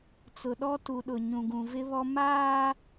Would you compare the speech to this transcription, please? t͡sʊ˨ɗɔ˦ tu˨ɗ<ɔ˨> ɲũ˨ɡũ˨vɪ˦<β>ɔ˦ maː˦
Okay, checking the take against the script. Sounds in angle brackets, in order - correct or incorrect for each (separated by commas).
incorrect, correct